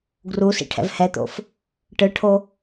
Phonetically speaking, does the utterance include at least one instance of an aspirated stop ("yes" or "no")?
yes